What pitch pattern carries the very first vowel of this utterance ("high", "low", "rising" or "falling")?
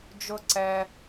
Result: high